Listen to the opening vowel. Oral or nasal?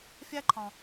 oral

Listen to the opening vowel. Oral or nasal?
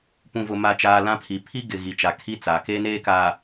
nasal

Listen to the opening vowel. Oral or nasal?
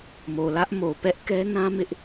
oral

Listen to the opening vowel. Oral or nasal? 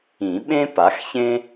nasal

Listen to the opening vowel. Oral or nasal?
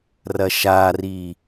oral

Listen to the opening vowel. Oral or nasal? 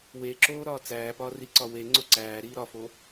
oral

